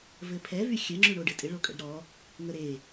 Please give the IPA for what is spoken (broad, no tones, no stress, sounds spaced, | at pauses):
v ɘ pʰ ɛ v y xʲ ə ŋ͡ǁ y ɳ o ɖ ɘ tʼ ɪ ɭ o kʼ ə̰ ɖ ɾ ɔ | ŋ ə ɾ e